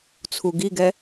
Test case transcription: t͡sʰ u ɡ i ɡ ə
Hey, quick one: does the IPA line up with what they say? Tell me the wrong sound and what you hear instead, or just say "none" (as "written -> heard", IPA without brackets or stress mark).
ə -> ɛ